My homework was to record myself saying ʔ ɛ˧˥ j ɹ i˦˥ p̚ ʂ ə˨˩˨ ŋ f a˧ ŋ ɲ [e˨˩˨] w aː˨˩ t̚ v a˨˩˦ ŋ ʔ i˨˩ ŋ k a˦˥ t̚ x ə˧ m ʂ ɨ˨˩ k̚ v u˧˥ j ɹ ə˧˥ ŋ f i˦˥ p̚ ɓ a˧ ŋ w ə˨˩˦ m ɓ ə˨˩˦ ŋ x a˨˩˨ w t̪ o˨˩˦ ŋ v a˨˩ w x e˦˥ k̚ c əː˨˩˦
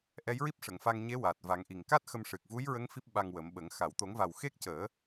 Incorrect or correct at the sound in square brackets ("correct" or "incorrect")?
incorrect